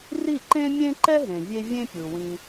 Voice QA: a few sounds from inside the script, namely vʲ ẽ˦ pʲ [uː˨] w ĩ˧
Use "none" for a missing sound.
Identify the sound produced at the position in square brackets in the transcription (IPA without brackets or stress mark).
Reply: u˨